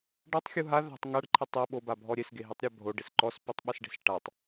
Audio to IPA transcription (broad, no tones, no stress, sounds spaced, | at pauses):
ɖ a tˤ xʲ u ɦ a ð a̤ tˤ ŋ a ɖ ǃʰ ɪ tˤ e ɓ o b a bʱ ɔ ɾʲ e s ɡ e ɦ i tˤ ɾʲ a bʱ o ɖ ɪ s ǃ ɔ s p i tˤ ɓ ɛ s ɖ e̤ s ʈ a tˤ